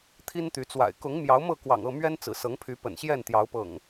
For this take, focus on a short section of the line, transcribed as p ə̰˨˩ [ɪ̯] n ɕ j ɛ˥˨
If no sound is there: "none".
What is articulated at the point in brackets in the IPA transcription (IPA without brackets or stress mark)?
none